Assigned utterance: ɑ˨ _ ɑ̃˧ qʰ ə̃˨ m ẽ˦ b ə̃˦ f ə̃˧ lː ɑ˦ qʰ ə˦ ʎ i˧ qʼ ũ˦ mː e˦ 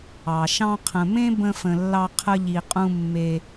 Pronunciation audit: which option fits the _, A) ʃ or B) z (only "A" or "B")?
A